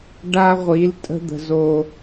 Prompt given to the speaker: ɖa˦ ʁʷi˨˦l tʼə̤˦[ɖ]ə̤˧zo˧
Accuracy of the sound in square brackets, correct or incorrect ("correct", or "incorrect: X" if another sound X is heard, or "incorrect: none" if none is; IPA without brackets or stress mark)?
incorrect: d̪